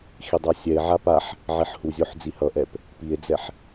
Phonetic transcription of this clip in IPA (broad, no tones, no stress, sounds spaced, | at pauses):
x i dˤ a sʲ ɛ e̯ ʕ a p a ħ | ʕ i ħ h u zʲ o ħ d͡z i h ʌ ʔ ɛ p | p i e̯ d͡z ɛ ħ